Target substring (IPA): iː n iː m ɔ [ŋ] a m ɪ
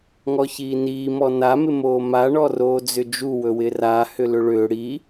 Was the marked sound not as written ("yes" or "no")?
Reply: yes